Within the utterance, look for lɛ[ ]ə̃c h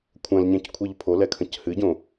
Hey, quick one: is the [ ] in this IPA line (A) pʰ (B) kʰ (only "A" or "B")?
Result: B